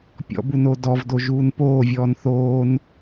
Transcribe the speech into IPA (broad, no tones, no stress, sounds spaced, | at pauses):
pʲ ɔ̰ b u n o d ɔ v d o ʒ uː n p oː vʲ ɔː n θ oː n